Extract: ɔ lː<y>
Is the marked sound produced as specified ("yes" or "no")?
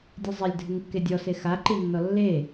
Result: no